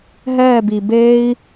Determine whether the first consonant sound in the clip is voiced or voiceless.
voiced